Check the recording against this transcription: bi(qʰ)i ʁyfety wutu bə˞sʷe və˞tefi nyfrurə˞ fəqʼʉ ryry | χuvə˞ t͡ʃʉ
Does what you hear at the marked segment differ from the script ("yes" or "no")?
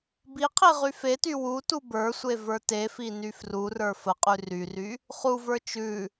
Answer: no